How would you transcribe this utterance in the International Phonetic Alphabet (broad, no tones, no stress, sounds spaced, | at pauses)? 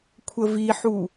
kʷʰ ə v i ħ u